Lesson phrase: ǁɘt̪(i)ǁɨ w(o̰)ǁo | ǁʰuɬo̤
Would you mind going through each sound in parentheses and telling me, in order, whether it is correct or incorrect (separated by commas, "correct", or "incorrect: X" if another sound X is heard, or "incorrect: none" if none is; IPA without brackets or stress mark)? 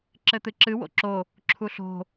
incorrect: ɨ, correct